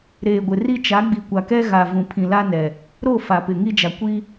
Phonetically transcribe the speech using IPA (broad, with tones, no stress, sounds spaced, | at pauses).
ɾ eː˨ ɡʷ ɪ˨ r i˦ t͡ʃ a˨˦ ɡ͡b i˨ kʷ a˨ k ɛ˦ ɣ a˨ v ũ˨ pʰ ĩ˨ l a˦ n ɛ˨ | ɾ o˦˨ f a˨ p ɪ˨ ŋ i˦ d͡ʒ a˨ kʷ i˦